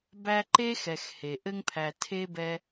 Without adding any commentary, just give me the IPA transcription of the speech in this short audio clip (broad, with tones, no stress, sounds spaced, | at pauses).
b æ˦ ǃ e˥ x ɛ˨ x h e˩ ʔ ɘ˥ ŋ pʰ æ˨ tʰ e˥ b ɛ˦